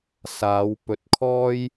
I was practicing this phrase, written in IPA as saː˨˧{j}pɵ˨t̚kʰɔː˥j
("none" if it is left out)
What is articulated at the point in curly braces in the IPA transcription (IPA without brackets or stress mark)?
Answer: w